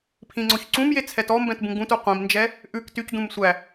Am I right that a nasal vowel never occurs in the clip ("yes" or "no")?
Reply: no